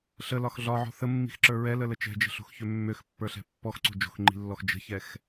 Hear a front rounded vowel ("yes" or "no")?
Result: yes